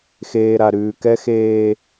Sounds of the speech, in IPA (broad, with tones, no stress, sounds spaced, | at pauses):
x eː˨ ɾ a˨ ɾ ʉː˨ k ɛ˦ x eː˦